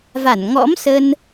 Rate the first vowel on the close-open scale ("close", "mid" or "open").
open